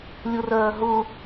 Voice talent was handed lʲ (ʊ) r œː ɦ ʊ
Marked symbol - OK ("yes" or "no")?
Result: yes